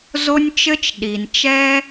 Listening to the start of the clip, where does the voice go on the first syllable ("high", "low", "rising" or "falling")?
high